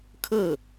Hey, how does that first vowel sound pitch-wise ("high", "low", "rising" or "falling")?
falling